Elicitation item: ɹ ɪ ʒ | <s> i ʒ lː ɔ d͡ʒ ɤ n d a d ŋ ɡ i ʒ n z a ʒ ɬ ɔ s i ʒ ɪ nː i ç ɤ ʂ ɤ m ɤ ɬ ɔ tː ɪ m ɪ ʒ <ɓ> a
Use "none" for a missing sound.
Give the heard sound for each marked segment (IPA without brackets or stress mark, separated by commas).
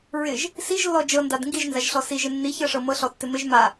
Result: s, m